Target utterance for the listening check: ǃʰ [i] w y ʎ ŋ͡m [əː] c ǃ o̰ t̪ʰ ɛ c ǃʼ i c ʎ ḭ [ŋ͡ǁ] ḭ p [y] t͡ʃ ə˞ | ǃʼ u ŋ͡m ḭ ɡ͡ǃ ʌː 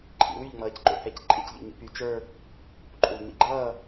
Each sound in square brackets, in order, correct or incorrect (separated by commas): incorrect, incorrect, incorrect, correct